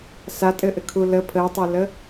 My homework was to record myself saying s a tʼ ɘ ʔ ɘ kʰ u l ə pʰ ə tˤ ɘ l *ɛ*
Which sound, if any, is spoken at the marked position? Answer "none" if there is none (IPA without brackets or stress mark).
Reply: ə